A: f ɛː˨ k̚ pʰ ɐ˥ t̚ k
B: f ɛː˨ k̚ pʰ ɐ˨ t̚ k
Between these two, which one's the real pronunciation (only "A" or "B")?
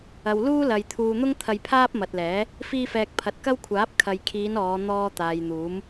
B